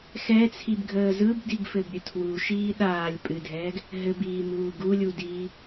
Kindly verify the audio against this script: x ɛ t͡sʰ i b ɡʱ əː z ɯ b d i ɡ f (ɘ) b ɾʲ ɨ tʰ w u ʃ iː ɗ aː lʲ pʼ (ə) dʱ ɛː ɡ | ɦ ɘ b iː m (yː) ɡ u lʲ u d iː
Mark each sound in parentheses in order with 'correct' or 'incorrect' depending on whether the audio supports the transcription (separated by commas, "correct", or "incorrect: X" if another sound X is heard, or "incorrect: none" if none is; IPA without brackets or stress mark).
correct, incorrect: ɨ, incorrect: uː